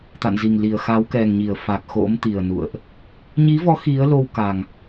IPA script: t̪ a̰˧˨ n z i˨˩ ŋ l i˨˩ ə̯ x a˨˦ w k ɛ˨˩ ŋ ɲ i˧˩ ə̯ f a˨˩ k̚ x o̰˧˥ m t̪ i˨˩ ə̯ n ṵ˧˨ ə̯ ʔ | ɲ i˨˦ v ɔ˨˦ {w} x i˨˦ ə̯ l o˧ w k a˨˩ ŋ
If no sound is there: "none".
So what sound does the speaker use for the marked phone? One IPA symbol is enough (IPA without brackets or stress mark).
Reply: none